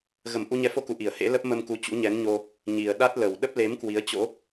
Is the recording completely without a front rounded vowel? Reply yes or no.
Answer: yes